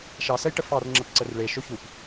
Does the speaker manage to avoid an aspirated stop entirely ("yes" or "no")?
yes